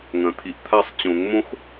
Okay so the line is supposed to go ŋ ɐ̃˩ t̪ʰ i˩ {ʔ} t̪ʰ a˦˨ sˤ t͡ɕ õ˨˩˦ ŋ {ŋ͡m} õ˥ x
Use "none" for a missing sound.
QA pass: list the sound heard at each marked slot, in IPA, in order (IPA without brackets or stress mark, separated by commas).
ʔ, m